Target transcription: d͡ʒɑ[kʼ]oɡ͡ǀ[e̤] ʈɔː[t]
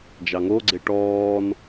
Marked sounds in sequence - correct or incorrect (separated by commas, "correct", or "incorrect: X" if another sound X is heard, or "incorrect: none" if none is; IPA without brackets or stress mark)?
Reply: incorrect: ŋ, incorrect: e, incorrect: n